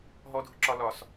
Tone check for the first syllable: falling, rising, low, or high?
high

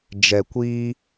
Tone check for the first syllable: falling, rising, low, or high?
low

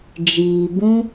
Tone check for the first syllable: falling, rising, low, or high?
low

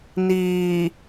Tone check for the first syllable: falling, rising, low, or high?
low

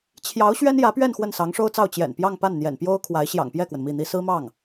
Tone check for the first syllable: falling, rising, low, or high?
rising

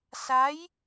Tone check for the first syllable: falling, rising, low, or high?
rising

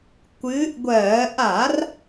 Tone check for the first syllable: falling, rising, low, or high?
rising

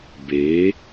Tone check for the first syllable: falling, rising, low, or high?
rising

